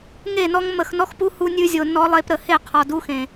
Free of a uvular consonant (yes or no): no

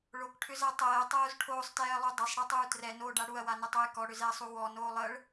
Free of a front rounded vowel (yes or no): no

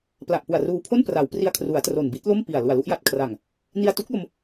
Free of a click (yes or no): yes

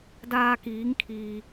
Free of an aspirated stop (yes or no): no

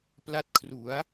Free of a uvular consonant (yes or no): yes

